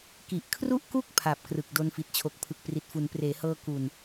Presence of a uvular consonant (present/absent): absent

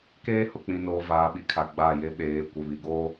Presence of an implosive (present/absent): present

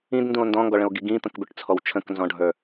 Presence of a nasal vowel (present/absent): present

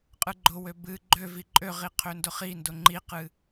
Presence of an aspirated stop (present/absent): present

